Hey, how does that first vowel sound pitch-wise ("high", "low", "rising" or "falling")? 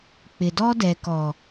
low